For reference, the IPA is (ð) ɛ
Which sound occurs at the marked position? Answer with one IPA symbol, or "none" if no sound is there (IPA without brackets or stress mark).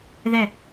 ð